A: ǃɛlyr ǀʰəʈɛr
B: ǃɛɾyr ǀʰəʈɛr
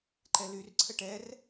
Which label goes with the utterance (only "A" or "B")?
A